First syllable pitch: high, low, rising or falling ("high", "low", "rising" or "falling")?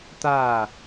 falling